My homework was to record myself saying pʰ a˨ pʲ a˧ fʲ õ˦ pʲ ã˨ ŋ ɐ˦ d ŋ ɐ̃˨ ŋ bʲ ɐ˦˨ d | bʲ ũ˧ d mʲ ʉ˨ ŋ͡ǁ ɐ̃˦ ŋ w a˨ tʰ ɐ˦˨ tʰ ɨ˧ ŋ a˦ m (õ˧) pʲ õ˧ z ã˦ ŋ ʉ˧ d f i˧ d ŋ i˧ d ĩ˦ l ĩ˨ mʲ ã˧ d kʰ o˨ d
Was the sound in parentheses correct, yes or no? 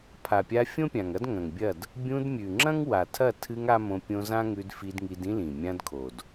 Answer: yes